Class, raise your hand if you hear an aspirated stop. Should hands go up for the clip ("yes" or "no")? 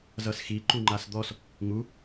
no